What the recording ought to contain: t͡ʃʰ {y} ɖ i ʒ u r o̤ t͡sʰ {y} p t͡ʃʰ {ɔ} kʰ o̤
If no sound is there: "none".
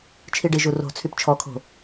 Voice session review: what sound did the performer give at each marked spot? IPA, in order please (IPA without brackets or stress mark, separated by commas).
i, y, ɔ